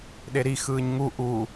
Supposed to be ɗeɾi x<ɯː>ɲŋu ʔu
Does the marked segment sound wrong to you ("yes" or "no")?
no